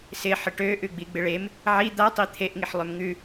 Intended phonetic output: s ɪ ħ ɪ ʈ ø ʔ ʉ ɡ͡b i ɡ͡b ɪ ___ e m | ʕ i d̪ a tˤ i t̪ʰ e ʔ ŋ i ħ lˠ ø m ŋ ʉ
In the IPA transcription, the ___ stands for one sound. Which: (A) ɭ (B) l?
A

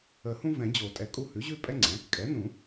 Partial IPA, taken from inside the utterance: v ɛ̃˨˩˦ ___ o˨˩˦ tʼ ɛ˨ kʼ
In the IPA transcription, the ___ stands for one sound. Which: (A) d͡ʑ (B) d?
A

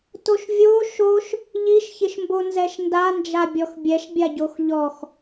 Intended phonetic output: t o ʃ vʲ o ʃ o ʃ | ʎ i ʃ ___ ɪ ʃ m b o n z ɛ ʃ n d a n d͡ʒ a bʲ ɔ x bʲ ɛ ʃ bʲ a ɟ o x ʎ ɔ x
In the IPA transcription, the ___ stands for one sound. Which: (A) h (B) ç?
B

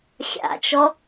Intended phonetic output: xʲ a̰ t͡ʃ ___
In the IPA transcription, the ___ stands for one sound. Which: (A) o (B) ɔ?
B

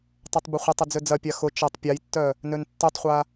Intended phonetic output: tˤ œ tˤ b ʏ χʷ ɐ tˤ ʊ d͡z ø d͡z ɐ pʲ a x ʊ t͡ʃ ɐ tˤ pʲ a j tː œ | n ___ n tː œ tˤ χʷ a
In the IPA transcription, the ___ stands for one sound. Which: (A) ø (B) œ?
A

